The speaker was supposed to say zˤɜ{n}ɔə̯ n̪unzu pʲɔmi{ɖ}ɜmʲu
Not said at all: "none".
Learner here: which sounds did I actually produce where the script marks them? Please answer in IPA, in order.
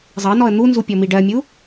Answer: n, ɖ

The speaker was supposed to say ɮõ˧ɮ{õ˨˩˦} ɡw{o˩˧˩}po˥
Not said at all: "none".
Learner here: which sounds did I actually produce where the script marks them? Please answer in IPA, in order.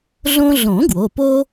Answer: õ˨˩˦, o˩˧˩

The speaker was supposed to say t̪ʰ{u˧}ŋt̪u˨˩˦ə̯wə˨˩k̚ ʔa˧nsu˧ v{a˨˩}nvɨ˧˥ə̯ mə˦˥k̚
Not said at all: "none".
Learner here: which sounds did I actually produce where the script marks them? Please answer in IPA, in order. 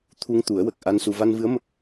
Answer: u˧, a˧

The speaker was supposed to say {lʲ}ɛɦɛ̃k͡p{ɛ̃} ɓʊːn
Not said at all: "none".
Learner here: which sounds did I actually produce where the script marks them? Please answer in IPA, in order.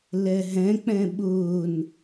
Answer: l, ɛ̃

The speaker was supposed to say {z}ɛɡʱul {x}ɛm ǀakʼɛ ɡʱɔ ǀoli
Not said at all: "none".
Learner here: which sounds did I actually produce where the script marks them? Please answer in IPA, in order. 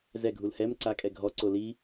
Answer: z, h

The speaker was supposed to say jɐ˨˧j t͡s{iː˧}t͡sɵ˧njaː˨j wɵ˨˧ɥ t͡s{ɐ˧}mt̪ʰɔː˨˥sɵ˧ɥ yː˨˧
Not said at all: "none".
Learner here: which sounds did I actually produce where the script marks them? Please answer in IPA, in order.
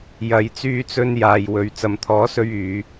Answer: yː˧, ɐ˨

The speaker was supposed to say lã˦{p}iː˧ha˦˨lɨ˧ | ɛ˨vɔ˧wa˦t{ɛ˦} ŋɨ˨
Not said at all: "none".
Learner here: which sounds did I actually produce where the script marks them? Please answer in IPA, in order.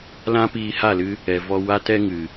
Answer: p, ɛ˦

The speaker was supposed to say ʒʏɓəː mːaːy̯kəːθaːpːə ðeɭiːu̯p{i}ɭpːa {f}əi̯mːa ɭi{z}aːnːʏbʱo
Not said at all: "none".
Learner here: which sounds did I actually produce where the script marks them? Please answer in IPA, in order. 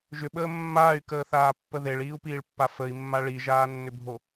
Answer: iː, f, ʒ

